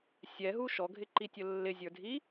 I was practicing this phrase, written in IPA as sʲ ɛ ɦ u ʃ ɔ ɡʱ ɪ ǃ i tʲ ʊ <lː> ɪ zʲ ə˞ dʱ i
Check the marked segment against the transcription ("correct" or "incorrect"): correct